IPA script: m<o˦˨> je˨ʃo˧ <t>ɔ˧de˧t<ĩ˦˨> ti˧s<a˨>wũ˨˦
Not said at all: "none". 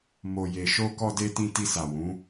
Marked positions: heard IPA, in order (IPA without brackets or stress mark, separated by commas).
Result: o˨, k, ĩ˧, a˨